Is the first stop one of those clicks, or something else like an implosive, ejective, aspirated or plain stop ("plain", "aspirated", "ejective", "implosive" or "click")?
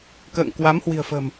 plain